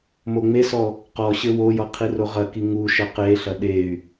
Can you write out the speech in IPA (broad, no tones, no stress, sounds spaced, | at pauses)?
m o ŋ͡m e s ɔ | q ɔ ɕ ɘ w o j ɔ qʰ i r o ʁ ɐ k i ŋ u ʃ ɐ q e ɬ ɐ ɗ e y̯